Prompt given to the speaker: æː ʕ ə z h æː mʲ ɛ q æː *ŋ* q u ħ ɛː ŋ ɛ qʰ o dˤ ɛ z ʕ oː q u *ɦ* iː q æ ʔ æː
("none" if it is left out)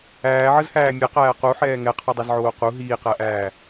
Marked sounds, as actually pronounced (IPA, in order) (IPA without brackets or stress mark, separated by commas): none, ɦ